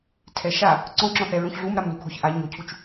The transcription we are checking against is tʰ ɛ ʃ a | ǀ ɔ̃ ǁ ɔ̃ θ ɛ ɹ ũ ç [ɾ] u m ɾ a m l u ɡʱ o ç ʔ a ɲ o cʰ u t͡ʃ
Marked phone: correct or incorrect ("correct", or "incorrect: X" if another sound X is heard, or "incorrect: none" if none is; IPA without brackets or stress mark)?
incorrect: ɮ